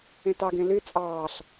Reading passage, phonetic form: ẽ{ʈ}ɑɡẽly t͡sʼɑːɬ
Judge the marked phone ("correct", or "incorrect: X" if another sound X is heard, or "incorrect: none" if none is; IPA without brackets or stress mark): incorrect: t